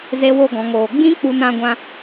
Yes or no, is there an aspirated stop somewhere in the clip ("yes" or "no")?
no